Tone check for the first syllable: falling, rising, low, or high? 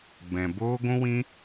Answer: low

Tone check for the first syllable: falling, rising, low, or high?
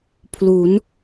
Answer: rising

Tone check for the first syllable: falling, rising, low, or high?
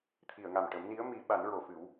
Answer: low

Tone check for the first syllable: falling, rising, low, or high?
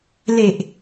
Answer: low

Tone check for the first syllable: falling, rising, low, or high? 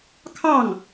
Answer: falling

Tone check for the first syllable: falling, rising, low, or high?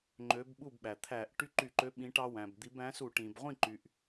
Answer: rising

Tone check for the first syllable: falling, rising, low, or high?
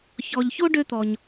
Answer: low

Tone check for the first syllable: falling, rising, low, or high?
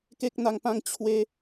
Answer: high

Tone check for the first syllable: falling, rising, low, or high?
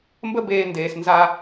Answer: high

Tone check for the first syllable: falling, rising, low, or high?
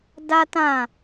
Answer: high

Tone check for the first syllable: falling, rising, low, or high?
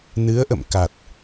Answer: rising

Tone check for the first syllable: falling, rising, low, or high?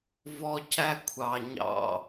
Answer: high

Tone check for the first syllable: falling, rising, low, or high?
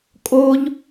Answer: high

